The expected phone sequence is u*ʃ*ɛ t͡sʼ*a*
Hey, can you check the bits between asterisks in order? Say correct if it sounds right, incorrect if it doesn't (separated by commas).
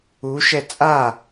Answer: correct, correct